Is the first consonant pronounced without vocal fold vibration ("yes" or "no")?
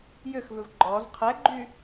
no